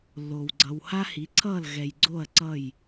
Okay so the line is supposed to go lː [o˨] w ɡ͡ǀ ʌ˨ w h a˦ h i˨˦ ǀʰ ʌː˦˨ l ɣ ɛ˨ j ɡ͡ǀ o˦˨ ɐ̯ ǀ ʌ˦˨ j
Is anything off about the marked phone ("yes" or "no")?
no